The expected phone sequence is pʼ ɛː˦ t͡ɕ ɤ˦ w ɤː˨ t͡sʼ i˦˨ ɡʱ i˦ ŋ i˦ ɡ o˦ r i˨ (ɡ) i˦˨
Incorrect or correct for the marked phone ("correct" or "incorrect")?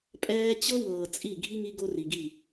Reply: correct